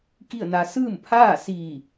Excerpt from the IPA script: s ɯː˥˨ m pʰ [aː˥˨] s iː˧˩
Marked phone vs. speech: correct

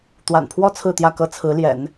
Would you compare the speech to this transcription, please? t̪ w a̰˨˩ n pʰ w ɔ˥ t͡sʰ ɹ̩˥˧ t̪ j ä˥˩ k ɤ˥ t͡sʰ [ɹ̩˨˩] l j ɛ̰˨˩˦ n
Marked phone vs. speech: incorrect: ɹ̩˧˥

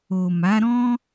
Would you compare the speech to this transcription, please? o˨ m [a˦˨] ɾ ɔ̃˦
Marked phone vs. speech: incorrect: a˨˦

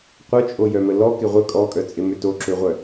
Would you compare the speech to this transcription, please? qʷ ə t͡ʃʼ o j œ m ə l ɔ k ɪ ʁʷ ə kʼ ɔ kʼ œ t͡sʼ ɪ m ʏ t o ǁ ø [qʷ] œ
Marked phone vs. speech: incorrect: ʁʷ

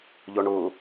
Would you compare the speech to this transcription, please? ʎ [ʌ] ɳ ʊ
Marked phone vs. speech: incorrect: ɔ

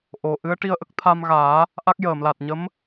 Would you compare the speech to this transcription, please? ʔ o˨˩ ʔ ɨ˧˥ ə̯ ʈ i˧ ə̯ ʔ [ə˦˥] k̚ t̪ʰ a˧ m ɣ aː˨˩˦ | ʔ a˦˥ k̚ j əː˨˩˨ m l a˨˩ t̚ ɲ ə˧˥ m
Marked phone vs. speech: correct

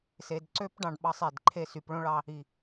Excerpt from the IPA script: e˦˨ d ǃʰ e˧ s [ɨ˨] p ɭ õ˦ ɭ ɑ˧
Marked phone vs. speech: incorrect: y˨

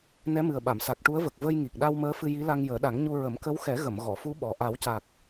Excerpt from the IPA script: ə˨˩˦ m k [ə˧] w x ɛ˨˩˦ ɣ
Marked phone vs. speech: incorrect: ə˧˥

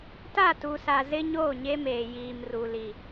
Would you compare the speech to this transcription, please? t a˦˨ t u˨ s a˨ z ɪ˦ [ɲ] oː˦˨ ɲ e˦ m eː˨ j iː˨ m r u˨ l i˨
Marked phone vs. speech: correct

